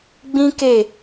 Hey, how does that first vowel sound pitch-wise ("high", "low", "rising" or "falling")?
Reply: high